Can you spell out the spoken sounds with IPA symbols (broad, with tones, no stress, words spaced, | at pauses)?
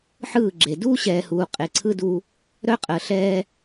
ħɯː˦˨ɡ͡ǁe˨ duː˦ɕɛː˨huː˨ qʼe˨ǀʰɯ˦du˦ | ɾœ˦qʼəː˨ ɬɛː˦